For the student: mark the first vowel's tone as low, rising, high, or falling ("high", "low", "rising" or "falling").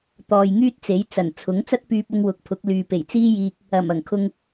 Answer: low